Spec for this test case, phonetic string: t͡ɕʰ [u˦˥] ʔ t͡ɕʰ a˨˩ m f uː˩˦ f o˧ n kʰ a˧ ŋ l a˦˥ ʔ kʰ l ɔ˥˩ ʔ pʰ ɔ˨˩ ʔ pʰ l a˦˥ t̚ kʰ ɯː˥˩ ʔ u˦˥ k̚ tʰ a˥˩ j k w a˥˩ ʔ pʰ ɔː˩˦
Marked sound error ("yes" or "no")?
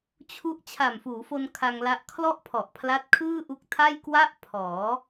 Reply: no